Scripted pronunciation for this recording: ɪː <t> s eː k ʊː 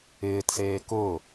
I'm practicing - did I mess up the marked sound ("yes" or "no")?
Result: no